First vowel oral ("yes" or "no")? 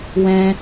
no